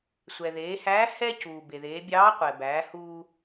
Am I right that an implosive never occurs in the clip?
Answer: yes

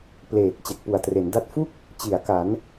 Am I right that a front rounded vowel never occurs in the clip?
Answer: yes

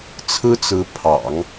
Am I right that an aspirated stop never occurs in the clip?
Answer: no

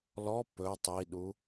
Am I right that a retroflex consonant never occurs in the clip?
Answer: yes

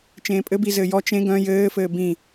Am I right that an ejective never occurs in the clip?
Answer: no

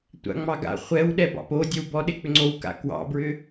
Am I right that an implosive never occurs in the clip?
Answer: no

